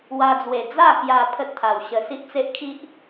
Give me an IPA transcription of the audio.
w a˧ d͡z w e˨˩ d͡z a˥˧ k j a˧ pʰ ə˦ t̚ t̪ʰ a˨˩ w ɕ ə˧ s i˦ ʔ t͡s e˦ ʔ kʰ i˦ ʔ

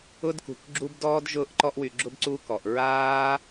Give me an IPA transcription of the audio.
ʊ˧ d k ṳ˨ k ɡ͡ǁ u˧ b d ɔː˧ d ʒ ʊː˧ ʔ ǃ ɔ˧ ʔ w y˨ ɡ͡ǁ ʊ˧ b ǀ u˧ k ɔ˨ ʔ ɹ aː˦

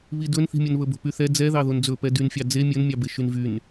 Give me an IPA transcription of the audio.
β i d ɵ n θ i̤ mʲ ɵ n β ɵ b o̤ p y θ ɛ d͡z ɛ ð ɑ ð o n d͡z ɵ p ɛ d y n fʲ ɑ d͡z e mʲ ɵ n mʲ ɑ b e ʃ y n v y n

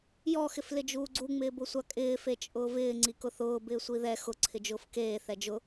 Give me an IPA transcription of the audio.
j ɔ x ɪ f l ɪ d͡ʒ uː ɡ͡ǀ u ŋ͡m ɪː b ʊ sʷ a kʼ ɪː f e t͡ʃʼ ʊː v ɪː ŋ͡ǀ i k ʊ θ ʊː b ɪː sʷ i ð ɛ x ʊ ǀʰ ɪ d͡ʒ ʊː f k eː θ ɛ d͡ʒ ʊ

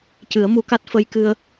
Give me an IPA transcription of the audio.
c ɨ˨˩˦ ə̯ m u˧ k a˦˥ t̚ f ə˧ j k ɨ˧ ə̯

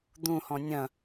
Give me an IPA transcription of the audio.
d̪ ũ h ɔ̃ nʲ ɐ̃

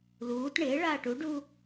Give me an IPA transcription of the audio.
l uː t ɳ ɪː ɭ aː ʈ u ɖ uː

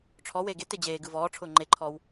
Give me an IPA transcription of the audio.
ʈ͡ʂʰ ɔ w eː ɡ e t e d͡ʑ eː ɡ ɯ v ɔː ʈ͡ʂʰ ʊː ŋ͡ǃ e ǃʰ ɔː w

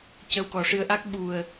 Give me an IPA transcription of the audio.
c ə˧ w k ɔ˨˩ ʂ ɨ˧ ə̯ ʔ a˦˥ k̚ ɓ u˨˩ ə̯

